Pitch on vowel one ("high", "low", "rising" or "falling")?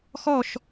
falling